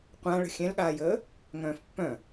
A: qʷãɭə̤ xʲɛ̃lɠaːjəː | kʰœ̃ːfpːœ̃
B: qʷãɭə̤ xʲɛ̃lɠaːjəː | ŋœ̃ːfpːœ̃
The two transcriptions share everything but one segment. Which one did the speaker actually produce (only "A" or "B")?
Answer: B